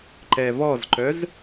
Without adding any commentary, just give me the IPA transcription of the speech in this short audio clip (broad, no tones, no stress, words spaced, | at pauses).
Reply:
ǃɛvɔzǃœz